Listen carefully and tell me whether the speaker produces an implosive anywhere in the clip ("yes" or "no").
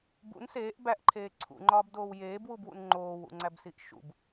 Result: no